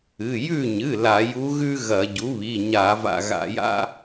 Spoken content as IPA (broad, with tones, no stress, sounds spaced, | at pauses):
ɨ˩˧˩ j ʉ˦˨ ɲ ɨ˩˧˩ l a˧˩˧ j u˧˥ ɣ ʉ˥ ɣ ɐ˧˩˧ ɟ u˩˥ β i˩˧˩ ɲ a˧˩˧ v a̰˦˨ ɣ a̰˧˩˧ j a̰˥